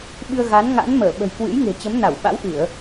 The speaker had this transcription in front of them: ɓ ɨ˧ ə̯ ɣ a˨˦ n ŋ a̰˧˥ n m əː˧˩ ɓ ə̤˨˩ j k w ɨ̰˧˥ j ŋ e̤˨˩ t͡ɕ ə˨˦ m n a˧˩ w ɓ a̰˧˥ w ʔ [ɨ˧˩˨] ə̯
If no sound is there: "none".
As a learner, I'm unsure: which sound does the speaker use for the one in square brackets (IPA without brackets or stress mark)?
ɨ˧˩˨